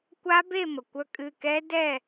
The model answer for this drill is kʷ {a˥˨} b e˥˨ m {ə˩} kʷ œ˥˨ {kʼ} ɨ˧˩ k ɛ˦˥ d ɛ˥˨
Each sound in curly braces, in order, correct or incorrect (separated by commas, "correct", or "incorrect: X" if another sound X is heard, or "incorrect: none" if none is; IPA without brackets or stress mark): incorrect: a˦˥, correct, correct